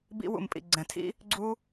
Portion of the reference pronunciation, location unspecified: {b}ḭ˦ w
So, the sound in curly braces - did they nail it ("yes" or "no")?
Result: yes